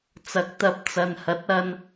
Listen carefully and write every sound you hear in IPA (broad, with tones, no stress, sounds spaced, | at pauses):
t͡s ɐ˨ k̚ t̪ ɐ˧ p̚ t͡s ɐ˨ n h ɐ˨˥ t̚ ɐ˧ n